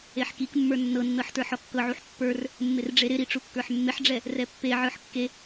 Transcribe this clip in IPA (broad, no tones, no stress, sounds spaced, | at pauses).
e ħ k i k mː ə˞ nː ɤ nː ɤ ħ t ə˞ ħ ɔ kː ɤ ʕ u ħ pː ə˞ r | mː ɪ r ɖ͡ʐ e ɾ ɪ ɾ i ʈ͡ʂ u kː ə˞ ħ mː ɪ ħ ɖ͡ʐ ɛ | r ɛ pː e ʕ ə˞ ħ kː e